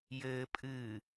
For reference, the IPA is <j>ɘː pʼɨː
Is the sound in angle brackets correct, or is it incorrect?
correct